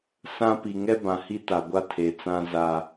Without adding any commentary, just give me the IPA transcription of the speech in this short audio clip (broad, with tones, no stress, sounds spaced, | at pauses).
s ã˦ p i˨ ŋ ɛ˦ b ã˨ h i˦ t a˨ ɡʷ a˦ tʰ e˨ t͡s ã˦ z a˦